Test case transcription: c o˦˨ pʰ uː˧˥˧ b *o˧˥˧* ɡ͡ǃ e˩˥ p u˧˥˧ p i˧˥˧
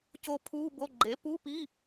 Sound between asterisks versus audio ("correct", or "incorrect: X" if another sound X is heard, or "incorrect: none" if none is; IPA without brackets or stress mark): correct